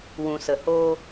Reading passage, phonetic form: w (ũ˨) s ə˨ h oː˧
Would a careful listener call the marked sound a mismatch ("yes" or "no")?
no